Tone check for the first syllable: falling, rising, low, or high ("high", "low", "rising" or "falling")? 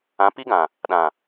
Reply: rising